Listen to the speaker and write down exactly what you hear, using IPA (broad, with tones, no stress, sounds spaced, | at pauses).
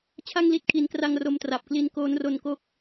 t͡ɕʰ a˥˩ ŋ l i˦˥ t̚ kʰ i˩˦ n k r a˧ ŋ r o˧ m t r a˨˩ p̚ k l i˦˥ n k oː˦˥ n r o˧ n k o˥˩ k̚